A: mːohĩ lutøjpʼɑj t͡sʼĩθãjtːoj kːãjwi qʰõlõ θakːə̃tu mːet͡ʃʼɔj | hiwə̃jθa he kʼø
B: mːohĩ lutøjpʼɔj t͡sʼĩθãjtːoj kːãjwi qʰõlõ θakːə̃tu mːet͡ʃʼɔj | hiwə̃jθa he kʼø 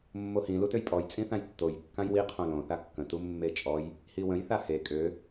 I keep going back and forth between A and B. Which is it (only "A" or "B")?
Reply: B